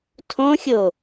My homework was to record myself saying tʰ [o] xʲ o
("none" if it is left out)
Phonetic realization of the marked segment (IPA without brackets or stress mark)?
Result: õ